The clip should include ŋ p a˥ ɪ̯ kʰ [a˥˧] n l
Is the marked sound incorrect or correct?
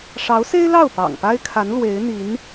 incorrect